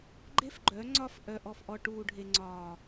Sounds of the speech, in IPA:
ɡ͡ǃe˦fɡ͡ǃœ˨˦ ŋ͡ǀɒ˦˨fʔœ˨ʔɔ˨fʔɔ˨ ʈuː˨ɖʱe˨ŋ͡ǀɒː˨

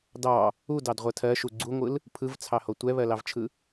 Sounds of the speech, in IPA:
dɑ | udɑd ʁʷɜtʰɜ ʃuɡ͡ǀuŋʷɯl | pʰɯvt͡sʰɑho tʷɛβɜlɑvt͡ʃʰɯ

